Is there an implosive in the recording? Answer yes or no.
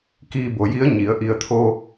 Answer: no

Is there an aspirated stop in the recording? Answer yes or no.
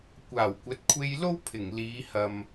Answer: yes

